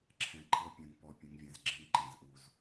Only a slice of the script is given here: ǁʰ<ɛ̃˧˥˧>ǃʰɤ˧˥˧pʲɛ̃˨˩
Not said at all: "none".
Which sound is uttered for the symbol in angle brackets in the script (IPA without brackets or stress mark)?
ɛ̃˨˩